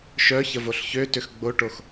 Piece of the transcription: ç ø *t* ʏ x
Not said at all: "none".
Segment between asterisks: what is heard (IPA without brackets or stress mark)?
t